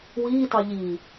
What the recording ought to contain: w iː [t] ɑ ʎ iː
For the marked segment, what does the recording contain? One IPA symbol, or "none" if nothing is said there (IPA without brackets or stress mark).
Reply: t